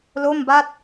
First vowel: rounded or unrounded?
rounded